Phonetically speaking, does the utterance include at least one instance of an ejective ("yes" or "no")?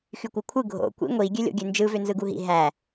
no